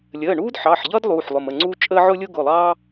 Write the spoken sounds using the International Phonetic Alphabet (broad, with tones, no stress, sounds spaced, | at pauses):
lʲ əː˩˧˩ ɳ uː˥ d ħ ɑ˩˧˩ ħ ʎ ʌː˥ d lˠ uː˩˧˩ ħ lˠ ʊ˩˧˩ m ə˩˧˩ ŋ͡ǀ uː˥ t͡ʃʼ əː˥ ʕ ʊː˥ lʲ ʊː˥ ɡ ʊ˩˧˩ lˠ ɑː˥